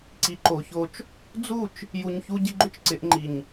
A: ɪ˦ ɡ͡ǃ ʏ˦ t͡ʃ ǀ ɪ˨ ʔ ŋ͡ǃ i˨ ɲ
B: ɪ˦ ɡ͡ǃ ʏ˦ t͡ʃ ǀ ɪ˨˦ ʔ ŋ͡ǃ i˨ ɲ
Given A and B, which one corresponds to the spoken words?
B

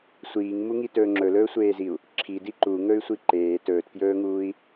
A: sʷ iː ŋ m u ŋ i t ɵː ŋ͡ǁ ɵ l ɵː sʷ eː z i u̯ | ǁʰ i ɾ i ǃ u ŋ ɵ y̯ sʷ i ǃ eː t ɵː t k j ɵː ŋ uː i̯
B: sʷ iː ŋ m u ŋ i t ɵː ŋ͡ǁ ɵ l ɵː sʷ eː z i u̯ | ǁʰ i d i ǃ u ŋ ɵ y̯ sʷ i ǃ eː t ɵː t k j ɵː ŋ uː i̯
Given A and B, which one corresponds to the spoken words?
B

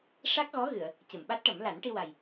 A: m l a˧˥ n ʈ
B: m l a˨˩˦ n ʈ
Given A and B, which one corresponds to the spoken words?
B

